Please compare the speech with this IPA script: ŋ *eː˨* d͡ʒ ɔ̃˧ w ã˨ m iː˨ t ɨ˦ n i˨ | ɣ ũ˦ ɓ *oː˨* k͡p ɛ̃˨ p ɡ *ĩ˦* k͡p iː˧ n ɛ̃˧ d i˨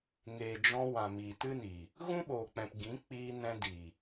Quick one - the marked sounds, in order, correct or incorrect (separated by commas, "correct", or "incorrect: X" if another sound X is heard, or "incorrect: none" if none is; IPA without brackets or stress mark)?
correct, correct, incorrect: ĩ˨˦